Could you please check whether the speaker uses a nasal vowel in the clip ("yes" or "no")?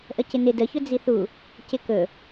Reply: no